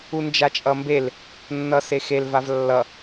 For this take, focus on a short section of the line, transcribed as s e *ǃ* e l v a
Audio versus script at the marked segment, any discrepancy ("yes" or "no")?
yes